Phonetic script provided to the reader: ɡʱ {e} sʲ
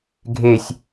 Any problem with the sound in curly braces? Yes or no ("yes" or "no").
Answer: no